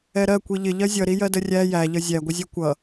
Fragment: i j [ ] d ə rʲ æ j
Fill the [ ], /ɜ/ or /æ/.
ɜ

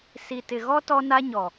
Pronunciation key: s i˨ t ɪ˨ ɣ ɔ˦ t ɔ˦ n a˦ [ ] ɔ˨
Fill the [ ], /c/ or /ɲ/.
ɲ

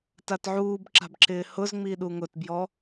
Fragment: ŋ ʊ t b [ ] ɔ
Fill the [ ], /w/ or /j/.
j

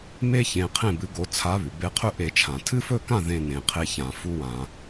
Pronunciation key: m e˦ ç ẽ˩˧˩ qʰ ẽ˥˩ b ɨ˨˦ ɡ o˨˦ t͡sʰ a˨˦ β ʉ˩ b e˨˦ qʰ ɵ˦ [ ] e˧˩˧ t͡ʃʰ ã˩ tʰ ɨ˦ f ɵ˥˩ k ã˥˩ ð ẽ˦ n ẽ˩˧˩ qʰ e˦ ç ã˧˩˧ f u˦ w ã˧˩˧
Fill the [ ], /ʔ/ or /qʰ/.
ʔ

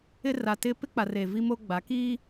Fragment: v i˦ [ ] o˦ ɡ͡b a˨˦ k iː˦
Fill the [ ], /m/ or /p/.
m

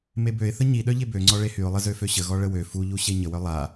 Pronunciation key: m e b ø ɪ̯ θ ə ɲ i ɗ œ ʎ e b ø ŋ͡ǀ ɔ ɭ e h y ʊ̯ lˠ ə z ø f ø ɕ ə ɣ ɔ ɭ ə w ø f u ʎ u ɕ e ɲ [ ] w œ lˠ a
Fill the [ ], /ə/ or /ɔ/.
ə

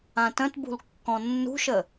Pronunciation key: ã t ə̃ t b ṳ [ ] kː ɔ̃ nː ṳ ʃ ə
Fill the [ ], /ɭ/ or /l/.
l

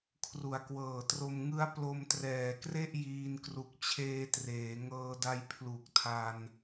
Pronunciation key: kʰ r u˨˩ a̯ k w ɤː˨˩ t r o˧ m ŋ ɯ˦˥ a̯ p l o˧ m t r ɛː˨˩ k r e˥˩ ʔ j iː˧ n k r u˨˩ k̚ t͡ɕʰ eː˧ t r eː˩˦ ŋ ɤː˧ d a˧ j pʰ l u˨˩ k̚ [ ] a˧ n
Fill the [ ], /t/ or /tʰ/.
tʰ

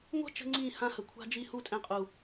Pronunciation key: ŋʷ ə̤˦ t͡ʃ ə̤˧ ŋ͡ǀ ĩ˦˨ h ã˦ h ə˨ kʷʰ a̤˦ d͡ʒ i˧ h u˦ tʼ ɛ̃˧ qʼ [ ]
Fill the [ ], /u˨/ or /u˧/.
u˨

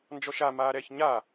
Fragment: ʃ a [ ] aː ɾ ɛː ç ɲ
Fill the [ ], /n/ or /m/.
m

